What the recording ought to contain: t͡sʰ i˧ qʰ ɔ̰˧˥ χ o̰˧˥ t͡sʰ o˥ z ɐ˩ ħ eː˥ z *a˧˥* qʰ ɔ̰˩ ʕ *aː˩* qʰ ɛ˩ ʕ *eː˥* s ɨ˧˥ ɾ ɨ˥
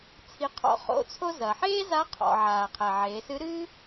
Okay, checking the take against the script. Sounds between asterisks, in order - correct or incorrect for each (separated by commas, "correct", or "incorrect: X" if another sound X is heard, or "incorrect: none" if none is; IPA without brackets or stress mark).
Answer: correct, correct, incorrect: eː˩˧